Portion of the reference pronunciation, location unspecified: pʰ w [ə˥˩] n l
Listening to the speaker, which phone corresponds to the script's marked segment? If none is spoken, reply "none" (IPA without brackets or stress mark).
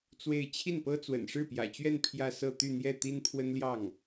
ə˥